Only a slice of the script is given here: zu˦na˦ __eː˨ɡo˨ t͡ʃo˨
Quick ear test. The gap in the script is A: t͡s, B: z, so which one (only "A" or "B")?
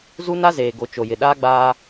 B